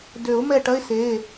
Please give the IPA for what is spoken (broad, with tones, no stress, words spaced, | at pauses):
dø˨˩˦ʊ̯mɛ˦˨ʈ ɐ˥ɪ̯se˩˧˩